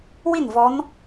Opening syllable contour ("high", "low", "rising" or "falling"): falling